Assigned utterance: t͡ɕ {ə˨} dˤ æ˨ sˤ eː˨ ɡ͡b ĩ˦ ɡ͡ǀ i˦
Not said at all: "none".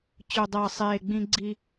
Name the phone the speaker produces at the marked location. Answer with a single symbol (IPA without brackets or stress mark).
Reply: ɵ˨